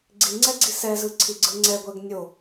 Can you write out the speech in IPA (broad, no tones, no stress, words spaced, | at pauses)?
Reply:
ɡ͡ǀiŋ͡ǀɛɡ͡ǀi sɛzɯǀʰiɡ͡ǀɯ ŋ͡ǀɛɡʷɛɡ nʲo